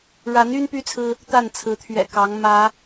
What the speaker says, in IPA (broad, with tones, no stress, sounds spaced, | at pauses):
ɻ a˨˦ n y˦ n p y˦ t͡sʰ ɹ̩˦ | t̪ a˥˨ n t͡sʰ ɹ̩˨˦ t̪ʰ ɥ ɛ̰˨˩ k ɑ˨˦ ŋ m ä˨˦